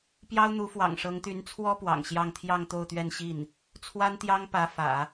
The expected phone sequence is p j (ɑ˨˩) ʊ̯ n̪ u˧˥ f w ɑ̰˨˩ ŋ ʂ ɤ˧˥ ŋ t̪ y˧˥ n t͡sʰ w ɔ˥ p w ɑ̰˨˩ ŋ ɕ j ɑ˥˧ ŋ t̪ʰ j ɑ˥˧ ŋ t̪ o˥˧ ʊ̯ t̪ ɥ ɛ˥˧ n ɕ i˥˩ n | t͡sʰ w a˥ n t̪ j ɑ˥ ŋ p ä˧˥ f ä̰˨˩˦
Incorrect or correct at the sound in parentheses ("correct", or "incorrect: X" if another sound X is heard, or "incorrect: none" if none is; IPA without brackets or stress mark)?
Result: incorrect: ɑ˥